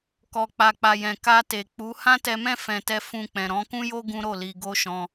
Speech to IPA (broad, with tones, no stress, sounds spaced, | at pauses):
k ɔ˨ k͡p a˨ k͡p a˨ j ɛ̃˨ k a˧ t e˨ k͡p u˨˦ h ã˦ t ɛ˧ m ɛ̃˦ f ɛ̃˧ t ɛ˦ f ũ˧ k͡p ɛ̃˨ ɾ ɔ̃˨˦ k ũ˦ j o˦ ɡ ũ˦ ɾ o˦˨ l i˧ ɡ o˦ ʃ ɔ̃˧